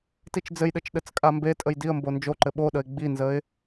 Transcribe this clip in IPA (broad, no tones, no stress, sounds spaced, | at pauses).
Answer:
t i t͡ʃ d͡z ɘ j ɗ ɘ t͡ʃ ɗ ɘ t͡s kʼ a m b e tʼ ə j d i ə̯ m b o n d͡ʒ o ǃ ɘ ɓ o ɗ ə ɪ̯ ɡ͡b i n z ə ɪ̯